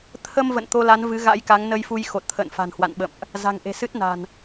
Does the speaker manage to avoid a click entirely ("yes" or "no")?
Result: yes